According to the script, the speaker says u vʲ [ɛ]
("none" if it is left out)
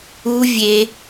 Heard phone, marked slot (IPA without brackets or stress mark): e